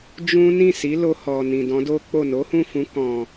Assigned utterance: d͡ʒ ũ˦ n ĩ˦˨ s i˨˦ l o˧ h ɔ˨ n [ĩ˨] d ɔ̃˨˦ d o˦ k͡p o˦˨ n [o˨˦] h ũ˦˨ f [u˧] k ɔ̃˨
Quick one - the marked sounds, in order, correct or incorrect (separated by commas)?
correct, correct, incorrect